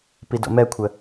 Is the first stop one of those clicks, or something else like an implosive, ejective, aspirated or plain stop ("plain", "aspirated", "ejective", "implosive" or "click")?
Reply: plain